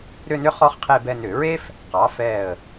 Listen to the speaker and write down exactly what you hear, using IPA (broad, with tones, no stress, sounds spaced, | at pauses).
ɾ ʏ˥˧ n ʏ˥ χ ɔ˥ χ qʰ e˥˧ b ɛ˥˧ n ʏ˧˩˧ ɹ e˥ f | q ɑ˩˥ f ɛ˧˩ ə̯